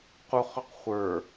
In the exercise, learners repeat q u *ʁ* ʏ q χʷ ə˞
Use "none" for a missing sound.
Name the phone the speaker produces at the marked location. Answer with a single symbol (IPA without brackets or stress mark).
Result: χ